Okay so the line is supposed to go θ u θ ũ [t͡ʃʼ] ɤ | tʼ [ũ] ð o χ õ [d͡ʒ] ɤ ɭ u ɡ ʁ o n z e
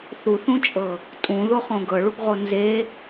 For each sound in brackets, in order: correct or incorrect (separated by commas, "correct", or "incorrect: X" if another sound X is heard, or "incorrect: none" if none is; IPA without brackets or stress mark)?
correct, correct, incorrect: ɡ